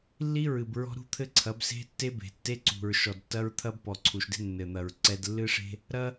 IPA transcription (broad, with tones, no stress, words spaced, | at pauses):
lːi˦ɹɨ˨b ɹɔ̤˦ ɾṳ˦t̪ʰɘ˦ǀʰɐ˨˦b se̤˦tːe˦be̤˨ tːe˦ǀṳ˨ɹ ʃɔ˨dtːɐ˦ɹt̪ʰɐ˦b pɔ˨ǀʰu˨ʃde̤˦ nːɘ˨n̪ɐ˨ɹ ǀɛ˦d lːɨ˦ʂe̤˦ | ɾɐ˦